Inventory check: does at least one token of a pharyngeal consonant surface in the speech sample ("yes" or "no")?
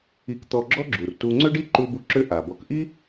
no